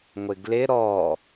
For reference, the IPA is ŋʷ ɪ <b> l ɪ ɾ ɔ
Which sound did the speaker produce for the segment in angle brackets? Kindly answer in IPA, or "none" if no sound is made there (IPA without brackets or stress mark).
ɡ